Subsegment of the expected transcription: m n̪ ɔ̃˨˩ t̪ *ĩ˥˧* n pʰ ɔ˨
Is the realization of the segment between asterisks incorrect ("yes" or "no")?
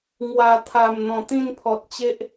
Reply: no